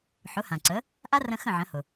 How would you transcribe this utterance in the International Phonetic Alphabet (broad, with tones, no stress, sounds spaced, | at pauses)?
ħ ʊ˩˥ h ã˩ ǀ ə˩˥ | ʔ a˥ r ə̃˧ x ə̃˥˩ ʕ ə̃˩˥ h ʊ˩